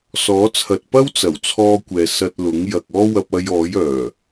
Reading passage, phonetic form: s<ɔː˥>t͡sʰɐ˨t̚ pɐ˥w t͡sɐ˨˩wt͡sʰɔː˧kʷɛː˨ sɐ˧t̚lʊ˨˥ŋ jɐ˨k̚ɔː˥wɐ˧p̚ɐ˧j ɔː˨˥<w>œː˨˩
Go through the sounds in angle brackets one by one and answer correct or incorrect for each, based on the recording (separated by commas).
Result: incorrect, incorrect